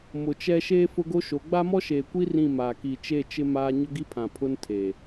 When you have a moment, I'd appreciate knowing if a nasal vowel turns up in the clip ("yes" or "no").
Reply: yes